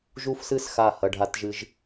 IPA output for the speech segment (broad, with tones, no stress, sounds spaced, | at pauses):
ʒ u˦˥ f s ɨ˦˥ s x a˧˩ h ɐ˩˧˩ ɖʱ a˧ t ʒ ɨ˧ ʒ